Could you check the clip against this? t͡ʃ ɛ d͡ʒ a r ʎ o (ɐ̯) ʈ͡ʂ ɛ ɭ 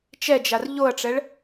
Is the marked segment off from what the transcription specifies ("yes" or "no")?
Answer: no